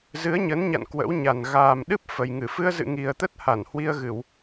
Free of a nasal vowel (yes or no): yes